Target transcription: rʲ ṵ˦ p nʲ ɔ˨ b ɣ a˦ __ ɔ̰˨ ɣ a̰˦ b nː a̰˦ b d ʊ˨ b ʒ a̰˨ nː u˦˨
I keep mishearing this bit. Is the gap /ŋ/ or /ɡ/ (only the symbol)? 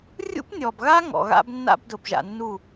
ŋ